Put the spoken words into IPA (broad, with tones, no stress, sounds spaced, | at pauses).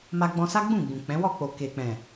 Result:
m a˧ ɡ͡b ɔ̃˧ s a˦ ɡ͡b ũ˦˨ ɡ͡b ũ˨ k͡p ɛ̃˨˦ w ɔ˦˨ k͡p o˨ k e˨ k͡p ɛ̃˨